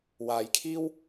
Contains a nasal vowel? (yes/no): no